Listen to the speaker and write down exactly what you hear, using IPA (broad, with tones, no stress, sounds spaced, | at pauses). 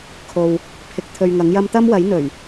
kʰ o˨ w | pʰ ɪ˧ k̚ t̪ʰ ɵ˧ ɥ ŋ ɐ˨˥ ŋ j ɐ˥ m t̪ ɐ˥ m w ɐ˨˥ j n̪ ɵ˨˩ ɥ